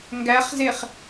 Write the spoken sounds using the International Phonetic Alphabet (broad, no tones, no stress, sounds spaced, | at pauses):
ŋ ɡ æ χ z e χ